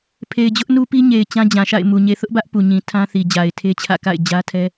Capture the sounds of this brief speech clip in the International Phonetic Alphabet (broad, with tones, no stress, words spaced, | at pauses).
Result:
pʰe˨ɪ̯d͡ʑʊ˦ʔnu˦pi˦ ɲe˨ɪ̯ t͡ɕã˦d͡ʑã˨ʃa̰˦˨ɪ̯ mu˨ ɲe˨θʊ˦ʔbä˦ʔ pu˨ɲĩ˨ tʰã˦θi˨ d͡ʑa˨ɪ̯tʰe˦t͡ɕʰä̰˦˨ka̰˦˨ɪ̯ d͡ʑä˦tʰɛ˦